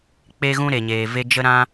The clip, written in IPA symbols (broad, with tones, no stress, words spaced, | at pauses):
k͡pe˧ɣũ˧ ɾe˨ɲeː˨ve˧ d͡ʒə˧ɾã˧